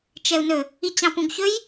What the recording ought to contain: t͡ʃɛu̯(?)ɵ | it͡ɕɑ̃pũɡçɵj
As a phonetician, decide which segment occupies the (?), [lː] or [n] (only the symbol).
n